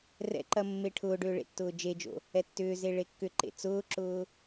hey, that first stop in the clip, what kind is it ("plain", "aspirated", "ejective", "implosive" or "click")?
click